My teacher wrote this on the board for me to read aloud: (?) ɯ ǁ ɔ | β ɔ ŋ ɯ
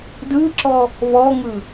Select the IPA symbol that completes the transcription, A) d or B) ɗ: A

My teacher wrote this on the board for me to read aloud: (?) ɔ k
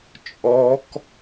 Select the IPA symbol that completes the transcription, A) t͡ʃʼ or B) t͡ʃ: A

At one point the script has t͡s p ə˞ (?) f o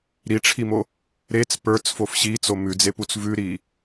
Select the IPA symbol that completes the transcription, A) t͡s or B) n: A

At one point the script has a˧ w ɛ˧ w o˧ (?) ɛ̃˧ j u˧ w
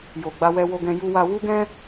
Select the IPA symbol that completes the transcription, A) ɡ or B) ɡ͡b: A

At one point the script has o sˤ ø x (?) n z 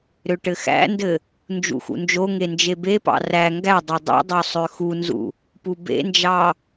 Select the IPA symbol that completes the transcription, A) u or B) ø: A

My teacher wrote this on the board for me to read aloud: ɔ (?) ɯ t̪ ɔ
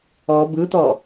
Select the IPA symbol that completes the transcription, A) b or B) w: A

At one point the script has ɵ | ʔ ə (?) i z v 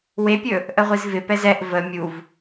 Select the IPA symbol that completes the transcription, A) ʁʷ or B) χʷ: A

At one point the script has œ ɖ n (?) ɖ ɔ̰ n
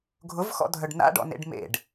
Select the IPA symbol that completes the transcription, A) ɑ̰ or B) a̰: B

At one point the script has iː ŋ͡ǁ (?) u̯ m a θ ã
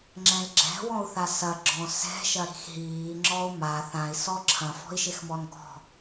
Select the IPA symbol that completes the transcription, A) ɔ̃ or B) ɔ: B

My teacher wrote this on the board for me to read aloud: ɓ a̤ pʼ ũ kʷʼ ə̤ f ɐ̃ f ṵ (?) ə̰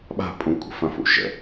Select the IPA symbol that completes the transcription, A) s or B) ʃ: B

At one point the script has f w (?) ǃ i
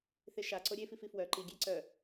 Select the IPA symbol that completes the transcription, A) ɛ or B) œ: B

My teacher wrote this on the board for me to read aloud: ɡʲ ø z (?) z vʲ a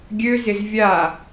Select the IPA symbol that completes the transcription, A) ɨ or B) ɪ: B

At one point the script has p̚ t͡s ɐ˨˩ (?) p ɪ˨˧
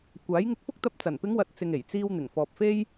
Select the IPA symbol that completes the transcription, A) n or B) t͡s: A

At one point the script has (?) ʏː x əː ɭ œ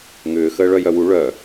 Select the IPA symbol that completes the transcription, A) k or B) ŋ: B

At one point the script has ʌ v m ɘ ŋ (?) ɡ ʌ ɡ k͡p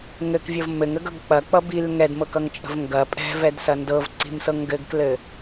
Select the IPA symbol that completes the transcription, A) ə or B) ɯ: A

